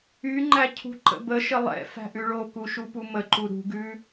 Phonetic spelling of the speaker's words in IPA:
y ŋ͡ǃ æ cʰ ṳ ǃ ə̰ b ə ʃ ə lˠ ɛ̰ f æ̤ ʔ ʉ ɭ o k u ʃ u p u m ə ǃ u ɾ ṳ ɡ ʉ

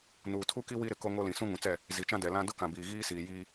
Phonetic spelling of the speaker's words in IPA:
n uː˨ tʰ u˦ k i˦ w i˦ ɾ ɪ˨ k o˦ ŋ o˦ l ĩ˨ s ũ˦ ŋ ũ˨ t͡s ɛ˦˨ | z i˨ t͡ʃ ã˦ d ɛ˨ l ã˦ d ʊ˦ k ã˨ b iː˨ ɣ iː˦ s iː˨ j iː˦

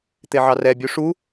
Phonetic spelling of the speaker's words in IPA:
t̪ e ʕ ɑ r ɛ bʲ u ʂ u

